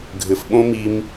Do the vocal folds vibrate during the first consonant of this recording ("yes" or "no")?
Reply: yes